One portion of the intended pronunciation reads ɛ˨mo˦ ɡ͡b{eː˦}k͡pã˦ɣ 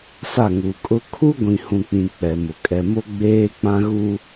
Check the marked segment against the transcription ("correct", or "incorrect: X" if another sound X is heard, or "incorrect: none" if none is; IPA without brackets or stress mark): correct